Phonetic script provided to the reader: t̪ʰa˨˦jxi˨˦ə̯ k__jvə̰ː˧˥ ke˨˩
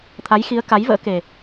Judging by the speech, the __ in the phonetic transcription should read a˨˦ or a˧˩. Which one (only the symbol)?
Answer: a˨˦